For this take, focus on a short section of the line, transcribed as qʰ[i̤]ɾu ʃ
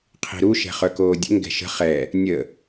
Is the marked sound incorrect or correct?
correct